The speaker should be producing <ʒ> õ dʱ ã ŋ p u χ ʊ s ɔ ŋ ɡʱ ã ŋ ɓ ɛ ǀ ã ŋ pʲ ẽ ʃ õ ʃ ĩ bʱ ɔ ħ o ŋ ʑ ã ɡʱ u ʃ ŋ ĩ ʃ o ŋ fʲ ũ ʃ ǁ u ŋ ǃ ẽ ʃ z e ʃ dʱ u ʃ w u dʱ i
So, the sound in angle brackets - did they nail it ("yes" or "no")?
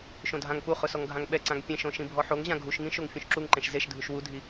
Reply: no